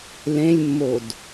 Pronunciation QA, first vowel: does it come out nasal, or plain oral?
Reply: nasal